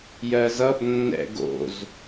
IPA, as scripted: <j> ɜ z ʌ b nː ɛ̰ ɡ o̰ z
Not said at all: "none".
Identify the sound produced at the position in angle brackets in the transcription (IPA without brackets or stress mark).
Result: j